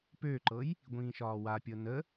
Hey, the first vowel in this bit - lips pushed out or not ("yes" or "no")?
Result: yes